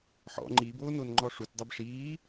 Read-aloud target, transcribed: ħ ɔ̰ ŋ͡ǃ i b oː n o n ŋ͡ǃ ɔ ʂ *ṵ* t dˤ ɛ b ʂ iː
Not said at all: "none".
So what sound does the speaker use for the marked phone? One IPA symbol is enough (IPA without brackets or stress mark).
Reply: u